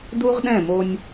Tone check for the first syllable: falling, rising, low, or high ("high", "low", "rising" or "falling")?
high